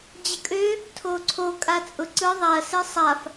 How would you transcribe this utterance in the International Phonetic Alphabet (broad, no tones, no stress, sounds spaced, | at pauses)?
d͡ʑ ə kʼ ø | tʰ o ǀʰ o kʼ a t͡sʼ ʊ ǀ ɯ ðˤ a ɐ̯ s e sˤ a f